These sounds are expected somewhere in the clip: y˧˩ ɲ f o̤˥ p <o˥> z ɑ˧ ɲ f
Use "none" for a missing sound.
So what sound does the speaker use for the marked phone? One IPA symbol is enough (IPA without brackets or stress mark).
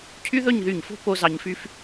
o˥